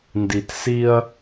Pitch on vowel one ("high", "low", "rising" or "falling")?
low